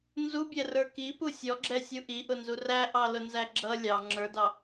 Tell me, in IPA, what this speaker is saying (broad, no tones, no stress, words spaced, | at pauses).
nzubʲɛrə˞ kipu sʲɔɡ͡ǁɛsʲu ʔiʔʊnzu ræʔɑlʊnzæ ɡ͡ǁʌ lʲɑ ŋ͡ǁə˞dɑ